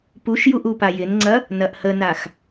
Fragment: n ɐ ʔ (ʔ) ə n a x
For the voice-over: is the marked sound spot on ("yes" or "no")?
no